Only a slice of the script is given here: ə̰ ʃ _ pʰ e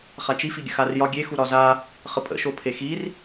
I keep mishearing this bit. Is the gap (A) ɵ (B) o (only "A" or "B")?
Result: B